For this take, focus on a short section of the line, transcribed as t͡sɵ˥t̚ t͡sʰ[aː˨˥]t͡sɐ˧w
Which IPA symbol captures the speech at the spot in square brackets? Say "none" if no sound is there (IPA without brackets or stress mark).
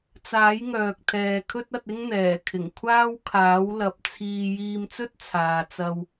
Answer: aː˨